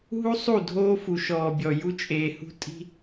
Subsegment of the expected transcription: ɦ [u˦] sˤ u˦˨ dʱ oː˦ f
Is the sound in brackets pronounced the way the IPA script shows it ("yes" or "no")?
yes